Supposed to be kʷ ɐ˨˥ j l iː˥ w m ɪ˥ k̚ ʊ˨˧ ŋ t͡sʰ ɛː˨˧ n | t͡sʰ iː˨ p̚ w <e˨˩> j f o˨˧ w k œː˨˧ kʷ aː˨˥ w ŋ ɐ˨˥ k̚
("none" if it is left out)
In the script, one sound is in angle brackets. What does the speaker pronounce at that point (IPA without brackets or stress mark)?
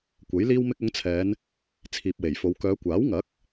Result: e˨˩